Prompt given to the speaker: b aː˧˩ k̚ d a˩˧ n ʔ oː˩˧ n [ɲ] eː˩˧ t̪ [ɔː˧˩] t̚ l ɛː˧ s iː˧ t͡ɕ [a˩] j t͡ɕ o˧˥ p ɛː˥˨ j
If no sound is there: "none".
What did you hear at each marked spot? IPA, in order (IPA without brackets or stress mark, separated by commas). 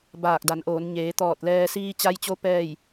ɲ, ɔː˧˩, a˧